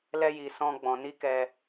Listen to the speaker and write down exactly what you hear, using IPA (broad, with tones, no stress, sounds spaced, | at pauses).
l ɛ˦ j i˧ s ɔ̃˦ ɡ͡b ɔ̃˧ n i˦ k ɛ˧